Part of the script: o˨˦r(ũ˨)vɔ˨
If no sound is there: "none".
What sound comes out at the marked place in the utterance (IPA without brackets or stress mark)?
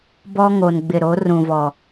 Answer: ũ˨